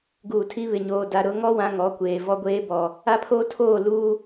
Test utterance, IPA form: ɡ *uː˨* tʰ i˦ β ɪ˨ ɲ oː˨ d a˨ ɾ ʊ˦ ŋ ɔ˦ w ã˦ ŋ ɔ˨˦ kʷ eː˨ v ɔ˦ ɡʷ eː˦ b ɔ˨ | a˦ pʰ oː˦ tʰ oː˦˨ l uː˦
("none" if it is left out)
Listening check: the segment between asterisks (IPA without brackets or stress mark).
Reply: uː˨